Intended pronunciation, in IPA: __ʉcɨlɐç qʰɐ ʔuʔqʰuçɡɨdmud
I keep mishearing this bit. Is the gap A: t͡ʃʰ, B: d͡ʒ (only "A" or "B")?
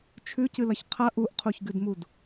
A